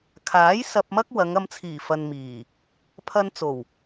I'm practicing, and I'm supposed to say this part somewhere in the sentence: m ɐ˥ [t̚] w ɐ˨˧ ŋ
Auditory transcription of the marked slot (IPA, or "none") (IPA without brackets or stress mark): k̚